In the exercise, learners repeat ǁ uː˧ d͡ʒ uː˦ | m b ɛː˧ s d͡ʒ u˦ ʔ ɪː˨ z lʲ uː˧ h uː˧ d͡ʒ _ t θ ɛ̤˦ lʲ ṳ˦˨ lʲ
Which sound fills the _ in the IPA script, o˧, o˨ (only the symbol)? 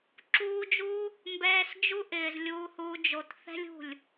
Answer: o˨